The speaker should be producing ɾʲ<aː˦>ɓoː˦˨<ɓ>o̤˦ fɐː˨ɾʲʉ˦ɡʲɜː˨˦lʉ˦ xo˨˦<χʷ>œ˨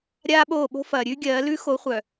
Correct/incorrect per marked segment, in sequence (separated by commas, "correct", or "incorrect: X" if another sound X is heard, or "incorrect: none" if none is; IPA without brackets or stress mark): correct, correct, correct